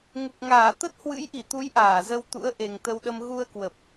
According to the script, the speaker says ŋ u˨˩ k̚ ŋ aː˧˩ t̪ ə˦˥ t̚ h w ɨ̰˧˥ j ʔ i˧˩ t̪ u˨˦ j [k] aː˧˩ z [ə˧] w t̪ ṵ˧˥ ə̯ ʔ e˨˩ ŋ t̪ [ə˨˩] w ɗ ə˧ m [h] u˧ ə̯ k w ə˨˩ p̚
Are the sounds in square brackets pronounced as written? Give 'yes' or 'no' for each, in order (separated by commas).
no, yes, no, no